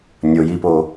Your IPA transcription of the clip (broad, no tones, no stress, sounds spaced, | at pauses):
nʲ o j i p o